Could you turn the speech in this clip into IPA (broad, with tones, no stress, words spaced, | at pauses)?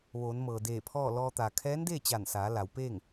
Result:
ʋoː˩˧nmɤː˩ deː˧˩pʰɔː˥˨lɔː˧t̪a˩ kʰɛː˧˥ndeː˥˨t͡ɕa˧˩nsaː˩˧ la˩˧wpeː˥˨ŋ